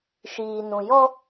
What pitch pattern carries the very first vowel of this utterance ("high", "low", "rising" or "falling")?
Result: low